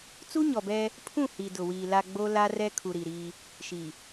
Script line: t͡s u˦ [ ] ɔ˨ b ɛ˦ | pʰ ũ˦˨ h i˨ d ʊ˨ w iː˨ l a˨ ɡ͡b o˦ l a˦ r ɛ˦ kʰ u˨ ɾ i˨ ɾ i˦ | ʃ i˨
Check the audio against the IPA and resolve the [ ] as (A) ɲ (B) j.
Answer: A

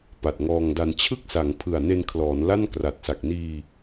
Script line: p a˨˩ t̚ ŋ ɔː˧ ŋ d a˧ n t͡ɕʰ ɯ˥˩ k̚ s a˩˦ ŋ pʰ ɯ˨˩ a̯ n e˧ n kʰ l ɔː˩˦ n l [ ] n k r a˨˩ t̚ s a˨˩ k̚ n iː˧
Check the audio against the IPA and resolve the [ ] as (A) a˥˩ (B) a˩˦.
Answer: A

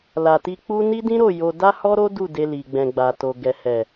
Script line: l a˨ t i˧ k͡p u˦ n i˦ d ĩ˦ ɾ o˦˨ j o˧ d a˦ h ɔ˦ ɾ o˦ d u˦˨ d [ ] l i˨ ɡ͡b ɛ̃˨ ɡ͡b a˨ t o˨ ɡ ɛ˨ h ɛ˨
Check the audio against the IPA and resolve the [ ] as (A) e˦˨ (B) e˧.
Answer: B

